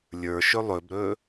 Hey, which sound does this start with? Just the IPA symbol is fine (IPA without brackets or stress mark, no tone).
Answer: lʲ